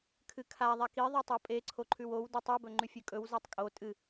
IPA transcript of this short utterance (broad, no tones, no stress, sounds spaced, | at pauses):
kʰ ɨ kʰ a ðˤ a k i ðˤ ʉ tˤ o pʼ e ǀʰ o ǃʰ ʉ w o w d ɵ tˤ ʉ b ɵ ŋ͡ǃ ʉ fʲ ʉ kʼ ɵ w z e tˤ kʼ o tʼ ɨ